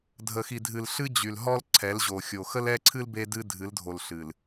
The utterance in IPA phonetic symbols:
dʱ ə˨ x i˨ dʱ ɨ˨ l ɬ ɨ˦ d͡ʑ y˨ l ɦ ɔ˦ l ǀʰ ɛ˨˦ l ʑ o˨ xʲ o˨ x ə˦ l ɛ˦ ǀʰ ɨ˦ l b e˦ d ɨ˦ dʱ ɨ˨˦ l dʱ o˨ l ɬ ɨ˨ l

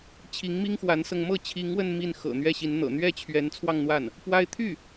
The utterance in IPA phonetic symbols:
t͡ɕʰ i˧˥ ŋ m i˥ ŋ x w a˧˥ n s ɤ˧ ŋ m ɤ˥˩ t͡ɕʰ i˧˥ ŋ w ə˥˧ n m i˥˩ n x ɤ̰˨˩ n̪ ɥ ɛ˥˩ ɕ i˧˥ n n̪ ɤ̰˨˩ n̪ ɥ ɛ˥˩ t͡ɕʰ ɥ ɛ˧˥ n t͡sʰ w ɑ˥˧ ŋ n̪ w a˥˩ n | p w a˥ ɪ̯ t̪ʰ y˥˩

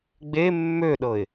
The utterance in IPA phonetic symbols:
ɡ͡b e mː ø ɗ ɤ ɪ̯

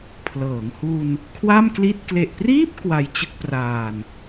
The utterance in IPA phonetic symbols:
pʰ l ɤː˩˦ ŋ h u˧ n | kʰ w a˥˩ m k l i˥˩ t̚ k l e˨˩ ʔ p r iː˥˩ p̚ k w a˧ j t͡ɕ ɯ˥˩ k̚ p r aː˧ n

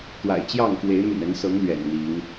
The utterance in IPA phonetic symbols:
t̪ w a̰˨˩ ɪ̯ t͡ɕ j ɑ˥˨ ŋ k w e˨˦ ɪ̯ m y̰˨˩ n ə˨˦ n s ɤ˨˦ ŋ l ɥ ɛ̰˨˩ n n̪ i˨˦ ŋ

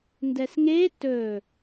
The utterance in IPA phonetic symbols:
n d ɛ s ŋ e t ɵ

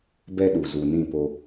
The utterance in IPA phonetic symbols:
b ɛ˦ ɗ u˨ z u˨ n ĩ˦˨ p o˦

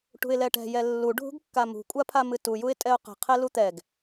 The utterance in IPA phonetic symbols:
ʈ ṳ ɪ̯ l ɛ ʈ ɛ̤ j ɛ lː u ɖʱ ṳ ɡ kː a m ṳ kʷʼ a pʰ a m ɨ t u j u ɪ̯ tʼ ɛ ʊ̯ q ɛ̤ qʰ ɛ l u t̪ ɛ ɡ

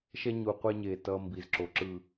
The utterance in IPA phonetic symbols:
ʃ ɛ˧ ɲ u˨ qʷ e˧ ɲ e˨ t ʌː˧ m b i˨ z ǁ o˨ ǁ ɯ˨

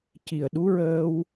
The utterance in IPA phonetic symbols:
c i˨˩ ə̯ ɗ u˧˥ ɹ əː˧ w

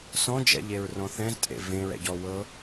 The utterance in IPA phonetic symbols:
s ɔ̃ d͡ʒ ɛ̰ ʎ e ɹ r ɔ̃ θ ɛ̃ z tʼ ḛ v ẽ ɹ ɛ̰ ɟ ɔ w ɤ

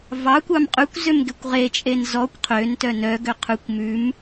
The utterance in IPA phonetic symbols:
v ɑ kʷ ɑ m qʼ ʉ kʷ z ø m ɡ e kʷ ʁ e t͡ʃʼ e n z ɔ kʷ qʰ ø n t œ n œ ɡ ø qʰ ʉ kʷ m ʉ m

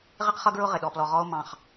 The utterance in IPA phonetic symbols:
ʁ ɪ˥ q χ ʌ˥ ɡ ɹ ʊ˥ ʁ ɪ˩ ɗ ɔ˨ p l ɔ˨ ʁ ɔ˦ o̯ m ɑ̃˩ χ

